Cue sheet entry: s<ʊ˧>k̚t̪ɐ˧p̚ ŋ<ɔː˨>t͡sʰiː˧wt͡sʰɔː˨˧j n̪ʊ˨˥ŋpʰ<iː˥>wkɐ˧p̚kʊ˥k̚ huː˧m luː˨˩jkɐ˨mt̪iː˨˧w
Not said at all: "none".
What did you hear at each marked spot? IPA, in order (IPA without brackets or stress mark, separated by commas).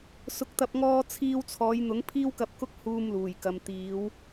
ʊ˧, ɔː˧, iː˥